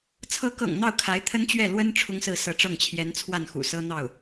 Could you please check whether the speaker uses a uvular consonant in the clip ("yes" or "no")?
no